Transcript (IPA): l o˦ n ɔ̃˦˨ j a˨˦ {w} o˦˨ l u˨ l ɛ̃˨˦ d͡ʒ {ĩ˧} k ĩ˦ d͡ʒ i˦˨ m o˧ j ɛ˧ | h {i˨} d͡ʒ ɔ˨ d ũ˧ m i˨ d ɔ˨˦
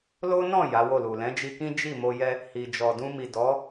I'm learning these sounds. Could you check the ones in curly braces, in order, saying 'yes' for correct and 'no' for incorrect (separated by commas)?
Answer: yes, no, yes